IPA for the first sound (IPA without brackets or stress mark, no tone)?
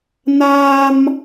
n